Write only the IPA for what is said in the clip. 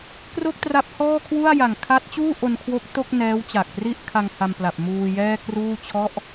k r o˥˩ k̚ t r a˦˥ p̚ h ɔː˥˩ kʰ w u˥˩ a̯ j a˨˩ ŋ kʰ a˦˥ t̚ t͡ɕ uː˥˩ ʔ o˧ n kʰ w o˦˥ k̚ t o˥˩ k̚ n ɛː˦˥ w t͡ɕ a˨˩ k̚ p r i˥˩ ʔ kʰ a˧ ŋ h a˧ m p l a˨˩ p̚ m uː˧ j ɛː˥˩ k r uː˥˩ t͡ɕʰ ɔ˦˥ ʔ

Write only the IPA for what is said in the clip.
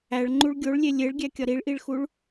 æ ɭ ŋ͡ǃ u ɭ ɡʲ o ɭ lʲ e lʲ e ɭ ɡʲ æ kʲ ɒ ɾ i ɭ ʔ i ɭ x u ɭ

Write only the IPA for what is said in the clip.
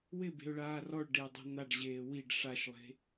w ɪ b e̤ ʊ̯ ɭ aː r ɔ ɭ ɖ e ə̯ dˤ ɛ̤ n̪ a ɖ ʑ eː w i ɖ ʂ a ʃ lˠ e̤

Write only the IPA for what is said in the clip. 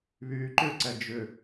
β yː ǃ ʏ ǀ ɛ d͡ʒ ʏ

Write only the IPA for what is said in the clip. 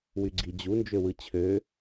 w y ɡ͡ǀ i d͡ʑ u n d͡ʒ ø w ɯ t͡ɕʰ ø

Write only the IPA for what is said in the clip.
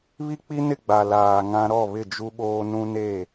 β i˦ k͡p i˦ n ɪ˦˨ ɡ͡b a˨ l aː˨ ŋ ã˦ ɾ ɔ˦˨ β ɪ˦˨ d͡ʒ u˦ ɓ oː˦ n ũ˦ n e˦˨

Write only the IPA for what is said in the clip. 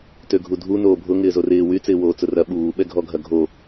t ø ɡʱ u dʱ u n oː bʱ ʊ ŋ ɪː z o r ɪː w y t͡s ɪː w oː t͡s ʊ r ɐ ɓ uː ɓ ɛ ɡʱ ɔ ɡʱ ɐ ɡʱ o

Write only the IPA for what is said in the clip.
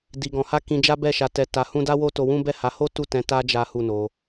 d i˧ ɡ ɔ̃˧ h a˦ k ĩ˧ d͡ʒ a˦ b ɛ˦˨ ʃ a˧ t ɛ˧ t a˧ h ũ˦ d a˦ w o˦ t o˧ w ũ˦ b ɛ˦˨ h a˨˦ h o˦ t u˦˨ t ɛ̃˨˦ t a˦ d͡ʒ a˦ h u˦˨ n o˧

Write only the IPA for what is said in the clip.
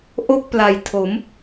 ʔ o˥˩ k̚ p l a˨˩ j tʰ o˩˦ m

